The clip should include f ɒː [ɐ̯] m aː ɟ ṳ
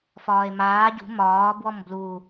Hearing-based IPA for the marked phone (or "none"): e̯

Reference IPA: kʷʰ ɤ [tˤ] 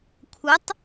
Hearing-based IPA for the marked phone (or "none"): tˤ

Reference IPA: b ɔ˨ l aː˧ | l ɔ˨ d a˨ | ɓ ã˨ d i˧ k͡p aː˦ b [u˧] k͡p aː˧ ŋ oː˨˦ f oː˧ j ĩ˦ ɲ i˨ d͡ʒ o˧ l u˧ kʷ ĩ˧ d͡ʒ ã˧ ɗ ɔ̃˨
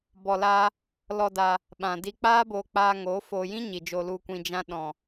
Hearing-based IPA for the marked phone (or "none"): o˧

